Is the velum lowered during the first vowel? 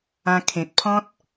yes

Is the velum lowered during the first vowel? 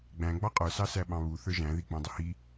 yes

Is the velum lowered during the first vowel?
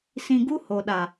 yes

